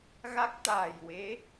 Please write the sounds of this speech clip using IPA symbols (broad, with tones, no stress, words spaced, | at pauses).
ɣa˦˥k̚t̪aː˨˩jwe˧˥